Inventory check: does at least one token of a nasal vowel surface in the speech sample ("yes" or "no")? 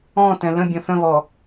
yes